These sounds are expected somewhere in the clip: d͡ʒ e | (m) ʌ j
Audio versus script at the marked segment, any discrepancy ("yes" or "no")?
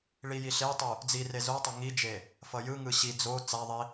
yes